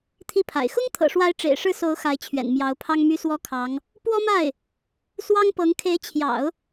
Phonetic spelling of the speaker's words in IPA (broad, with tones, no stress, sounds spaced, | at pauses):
t̪ʰ i˥˩ pʰ a̰˨˩ ɪ̯ x ʊ˥ ŋ t̪ʰ ɤ̰˨˩ ʂ w a˧˥ ɪ̯ ʈ͡ʂ ḛ˨˩ ɪ̯ ʂ ɻ̩˥˩ s o˧˥ ʊ̯ x a˧˥ ɪ̯ t͡ɕʰ ɥ ɛ̰˨˩ n m j ɑ˧˥ ʊ̯ pʰ ɑ˥ ŋ m y˥ s w ɔ˥ kʰ ɑ˧˥ ŋ | p w ɔ˥ m a˥˩ ɪ̯ | s w ɑ˥ ŋ p ɤ˧˥ ŋ kʰ e˧˥ ɪ̯ t͡ɕʰ j ɑ̰˨˩˦ ʊ̯